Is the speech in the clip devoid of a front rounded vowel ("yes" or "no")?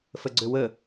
no